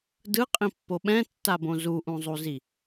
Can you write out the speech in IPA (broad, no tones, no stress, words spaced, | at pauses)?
dɯqʼĩpːo ɓɛ̃tːabõ zuʔũzˤuzi